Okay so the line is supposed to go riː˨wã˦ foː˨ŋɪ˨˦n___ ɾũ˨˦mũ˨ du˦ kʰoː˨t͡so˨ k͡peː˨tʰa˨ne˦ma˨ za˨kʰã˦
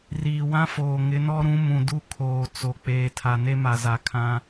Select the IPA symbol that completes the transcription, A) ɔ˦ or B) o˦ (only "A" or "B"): A